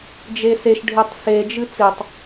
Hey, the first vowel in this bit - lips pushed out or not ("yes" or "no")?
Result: no